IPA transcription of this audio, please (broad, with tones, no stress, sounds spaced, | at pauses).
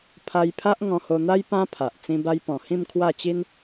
pʰ a˧ j pʰ a˦ ʔ ŋ ɔ̃˧ h o˧ n̪ a˦ j p ã˦ pʰ a˨ ʔ t͡s ĩ˧ b a˧ j p ɔ̃˨˩ h ĩ˥˧ m kʰ w a˥˧ t͡ɕ i˦ n